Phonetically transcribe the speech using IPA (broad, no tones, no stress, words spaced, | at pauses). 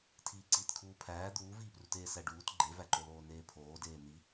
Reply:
tʰiːǀiːtkʰuːpʰæː d̪uːviːpruteː sæɖuːt ɡ͡ǃevæǃoloː neːpʰoːdeː n̪i